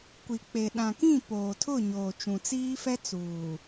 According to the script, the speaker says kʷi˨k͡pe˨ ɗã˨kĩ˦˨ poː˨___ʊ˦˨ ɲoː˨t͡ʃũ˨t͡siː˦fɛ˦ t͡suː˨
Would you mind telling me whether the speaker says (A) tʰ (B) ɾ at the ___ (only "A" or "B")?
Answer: A